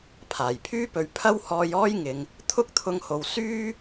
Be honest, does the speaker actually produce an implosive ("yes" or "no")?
no